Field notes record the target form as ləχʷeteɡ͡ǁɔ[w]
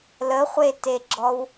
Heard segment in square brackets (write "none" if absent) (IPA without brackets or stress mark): w